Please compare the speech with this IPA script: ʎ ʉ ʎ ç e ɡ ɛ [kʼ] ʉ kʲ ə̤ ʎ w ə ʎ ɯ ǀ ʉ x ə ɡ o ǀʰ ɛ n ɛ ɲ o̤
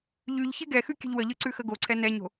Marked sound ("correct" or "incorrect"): incorrect